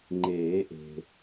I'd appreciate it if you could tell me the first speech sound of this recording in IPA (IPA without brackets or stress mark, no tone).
ŋ͡ǃ